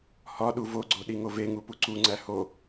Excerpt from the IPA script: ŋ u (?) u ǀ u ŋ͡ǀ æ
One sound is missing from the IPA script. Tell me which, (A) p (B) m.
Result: A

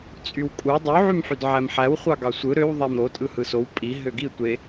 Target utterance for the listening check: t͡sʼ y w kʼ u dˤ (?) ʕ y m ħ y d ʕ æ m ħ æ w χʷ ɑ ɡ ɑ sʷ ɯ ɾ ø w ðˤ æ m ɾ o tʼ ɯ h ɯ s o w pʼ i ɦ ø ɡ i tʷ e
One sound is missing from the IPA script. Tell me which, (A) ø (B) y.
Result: B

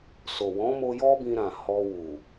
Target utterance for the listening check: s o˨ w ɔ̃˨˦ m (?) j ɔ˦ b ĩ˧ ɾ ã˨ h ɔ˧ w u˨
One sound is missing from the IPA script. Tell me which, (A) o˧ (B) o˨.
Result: A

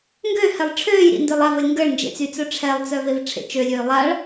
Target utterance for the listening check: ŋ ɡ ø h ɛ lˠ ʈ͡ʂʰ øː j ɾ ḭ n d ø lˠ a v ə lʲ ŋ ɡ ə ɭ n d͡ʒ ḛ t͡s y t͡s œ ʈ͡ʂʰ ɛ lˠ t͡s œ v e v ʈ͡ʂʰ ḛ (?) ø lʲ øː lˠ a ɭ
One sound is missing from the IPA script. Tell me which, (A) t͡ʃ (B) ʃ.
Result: A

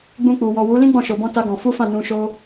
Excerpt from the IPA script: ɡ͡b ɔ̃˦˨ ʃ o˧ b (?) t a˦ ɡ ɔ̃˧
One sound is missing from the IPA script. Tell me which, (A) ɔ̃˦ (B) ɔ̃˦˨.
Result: A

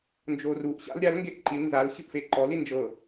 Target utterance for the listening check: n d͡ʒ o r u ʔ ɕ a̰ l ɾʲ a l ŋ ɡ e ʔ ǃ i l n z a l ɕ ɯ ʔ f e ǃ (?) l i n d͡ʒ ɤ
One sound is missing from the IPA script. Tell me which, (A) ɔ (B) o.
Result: A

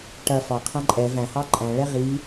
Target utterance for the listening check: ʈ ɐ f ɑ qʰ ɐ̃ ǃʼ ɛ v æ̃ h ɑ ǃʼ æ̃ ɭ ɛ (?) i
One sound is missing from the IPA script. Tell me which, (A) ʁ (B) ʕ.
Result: A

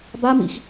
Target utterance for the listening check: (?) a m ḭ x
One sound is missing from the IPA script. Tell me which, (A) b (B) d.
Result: A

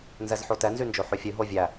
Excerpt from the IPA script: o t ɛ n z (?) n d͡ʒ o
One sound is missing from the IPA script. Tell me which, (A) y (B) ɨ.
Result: A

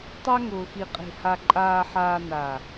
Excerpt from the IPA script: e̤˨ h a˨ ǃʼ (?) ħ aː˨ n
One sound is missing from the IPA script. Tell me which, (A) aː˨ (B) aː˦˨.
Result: A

